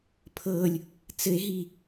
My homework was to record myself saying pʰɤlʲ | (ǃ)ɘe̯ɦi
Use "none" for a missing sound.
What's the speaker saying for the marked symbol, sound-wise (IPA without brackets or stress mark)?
t͡s